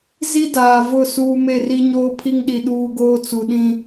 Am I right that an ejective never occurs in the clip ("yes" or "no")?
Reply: yes